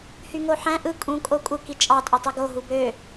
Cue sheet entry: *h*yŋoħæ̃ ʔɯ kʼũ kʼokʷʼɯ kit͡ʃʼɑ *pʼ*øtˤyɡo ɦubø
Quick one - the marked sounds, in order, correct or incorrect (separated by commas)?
correct, incorrect